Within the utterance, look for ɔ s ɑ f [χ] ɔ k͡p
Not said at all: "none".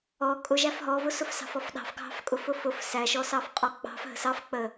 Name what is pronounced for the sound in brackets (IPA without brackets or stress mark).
qʼ